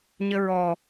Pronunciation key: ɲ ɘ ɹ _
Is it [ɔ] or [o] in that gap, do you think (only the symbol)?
ɔ